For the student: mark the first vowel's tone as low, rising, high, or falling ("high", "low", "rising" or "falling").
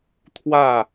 falling